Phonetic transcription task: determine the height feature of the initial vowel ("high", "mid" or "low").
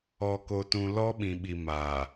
mid